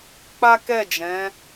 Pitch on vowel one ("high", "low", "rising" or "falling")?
high